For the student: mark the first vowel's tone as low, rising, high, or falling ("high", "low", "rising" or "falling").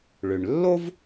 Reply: low